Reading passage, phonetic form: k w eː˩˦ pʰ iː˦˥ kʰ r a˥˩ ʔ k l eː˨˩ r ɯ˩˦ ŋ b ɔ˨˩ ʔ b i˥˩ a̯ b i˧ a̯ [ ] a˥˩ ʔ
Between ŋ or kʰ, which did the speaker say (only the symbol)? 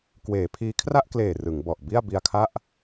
kʰ